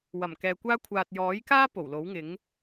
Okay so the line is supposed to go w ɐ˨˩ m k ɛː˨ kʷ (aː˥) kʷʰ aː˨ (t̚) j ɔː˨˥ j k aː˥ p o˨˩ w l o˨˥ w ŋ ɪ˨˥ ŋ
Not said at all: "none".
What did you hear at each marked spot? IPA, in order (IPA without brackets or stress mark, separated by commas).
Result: aː˥, t̚